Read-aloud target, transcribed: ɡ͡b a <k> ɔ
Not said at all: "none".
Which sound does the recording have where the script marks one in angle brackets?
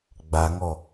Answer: ŋ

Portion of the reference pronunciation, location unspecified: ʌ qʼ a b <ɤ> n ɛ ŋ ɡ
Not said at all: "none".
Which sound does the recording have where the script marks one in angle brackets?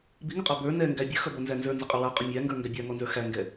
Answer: ə˞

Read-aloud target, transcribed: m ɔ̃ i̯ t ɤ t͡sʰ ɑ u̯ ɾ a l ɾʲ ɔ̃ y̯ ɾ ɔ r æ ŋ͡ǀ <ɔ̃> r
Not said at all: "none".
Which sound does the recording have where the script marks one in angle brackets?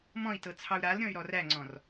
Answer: ɔ̃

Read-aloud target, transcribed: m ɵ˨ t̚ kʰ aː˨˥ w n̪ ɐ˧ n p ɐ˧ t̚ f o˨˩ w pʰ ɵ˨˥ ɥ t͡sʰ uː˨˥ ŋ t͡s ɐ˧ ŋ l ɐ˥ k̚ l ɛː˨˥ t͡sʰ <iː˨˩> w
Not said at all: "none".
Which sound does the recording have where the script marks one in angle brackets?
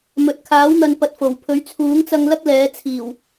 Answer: iː˨˩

